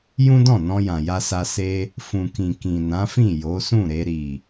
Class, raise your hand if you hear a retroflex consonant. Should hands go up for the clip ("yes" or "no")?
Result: no